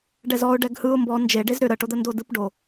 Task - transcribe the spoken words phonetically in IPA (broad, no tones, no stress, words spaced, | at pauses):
ɖɛzɔʊ̯ ɖɛɡhɯʊ̯ mbɔ nd͡ʒe ɖezɾʏ ɾəʈod̪əndo dɯpɖo